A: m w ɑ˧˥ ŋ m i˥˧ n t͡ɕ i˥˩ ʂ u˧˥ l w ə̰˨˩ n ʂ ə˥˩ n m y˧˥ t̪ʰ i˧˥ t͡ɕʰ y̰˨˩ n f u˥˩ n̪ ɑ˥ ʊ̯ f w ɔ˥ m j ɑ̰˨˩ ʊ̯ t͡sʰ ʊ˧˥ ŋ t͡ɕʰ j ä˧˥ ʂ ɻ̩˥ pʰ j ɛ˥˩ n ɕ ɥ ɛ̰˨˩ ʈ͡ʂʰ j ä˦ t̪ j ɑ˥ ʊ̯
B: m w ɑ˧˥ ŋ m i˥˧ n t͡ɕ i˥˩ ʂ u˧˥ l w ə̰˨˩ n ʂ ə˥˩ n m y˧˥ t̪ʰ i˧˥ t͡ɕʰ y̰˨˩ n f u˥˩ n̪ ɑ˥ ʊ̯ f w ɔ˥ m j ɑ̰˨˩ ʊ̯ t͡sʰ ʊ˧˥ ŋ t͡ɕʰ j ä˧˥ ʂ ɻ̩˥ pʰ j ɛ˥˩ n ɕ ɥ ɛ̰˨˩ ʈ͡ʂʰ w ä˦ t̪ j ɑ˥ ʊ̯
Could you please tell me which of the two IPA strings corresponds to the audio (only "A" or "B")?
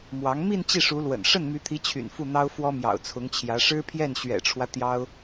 B